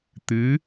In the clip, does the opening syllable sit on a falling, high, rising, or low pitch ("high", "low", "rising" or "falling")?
rising